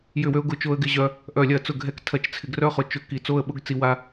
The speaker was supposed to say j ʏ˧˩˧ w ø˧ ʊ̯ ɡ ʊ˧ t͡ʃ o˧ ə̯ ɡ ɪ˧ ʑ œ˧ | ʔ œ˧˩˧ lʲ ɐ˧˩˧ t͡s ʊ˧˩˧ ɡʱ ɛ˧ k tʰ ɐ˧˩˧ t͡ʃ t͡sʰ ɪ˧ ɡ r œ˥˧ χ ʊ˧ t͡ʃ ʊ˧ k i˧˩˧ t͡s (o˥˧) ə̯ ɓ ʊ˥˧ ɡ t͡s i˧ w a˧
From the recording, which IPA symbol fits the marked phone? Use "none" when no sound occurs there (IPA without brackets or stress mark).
o˥˧